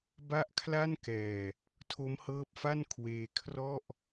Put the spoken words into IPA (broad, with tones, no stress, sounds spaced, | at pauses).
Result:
b a˥˩ ʔ kʰ l a˥˩ n k ɛː˨˩ | tʰ o˦˥ m h ɤː˦˥ p̚ f a˥˩ n kʰ w eː˧ kʰ r ɔ˥˩ ʔ